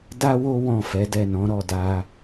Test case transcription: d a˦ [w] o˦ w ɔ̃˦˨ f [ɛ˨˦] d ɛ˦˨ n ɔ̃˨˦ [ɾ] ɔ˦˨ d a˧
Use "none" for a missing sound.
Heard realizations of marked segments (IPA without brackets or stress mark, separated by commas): w, ɛ˨˦, ɾ